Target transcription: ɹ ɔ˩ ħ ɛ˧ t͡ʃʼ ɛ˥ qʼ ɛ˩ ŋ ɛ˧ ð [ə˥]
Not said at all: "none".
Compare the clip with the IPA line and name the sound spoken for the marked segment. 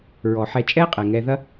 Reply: ɐ˥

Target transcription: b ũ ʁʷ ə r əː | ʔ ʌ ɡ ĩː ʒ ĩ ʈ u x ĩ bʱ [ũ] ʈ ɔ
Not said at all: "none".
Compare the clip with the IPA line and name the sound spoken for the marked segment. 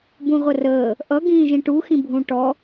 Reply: ũ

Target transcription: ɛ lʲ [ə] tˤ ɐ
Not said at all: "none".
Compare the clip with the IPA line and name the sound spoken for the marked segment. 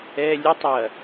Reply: ə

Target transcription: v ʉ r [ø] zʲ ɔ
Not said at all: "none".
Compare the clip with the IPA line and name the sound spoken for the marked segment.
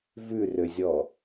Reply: ø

